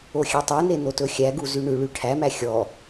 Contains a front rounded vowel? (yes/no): yes